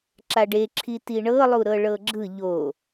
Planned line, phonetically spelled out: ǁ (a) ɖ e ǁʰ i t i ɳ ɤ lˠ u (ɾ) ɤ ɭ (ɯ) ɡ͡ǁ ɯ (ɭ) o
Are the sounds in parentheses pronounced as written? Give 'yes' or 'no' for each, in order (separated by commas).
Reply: yes, yes, no, no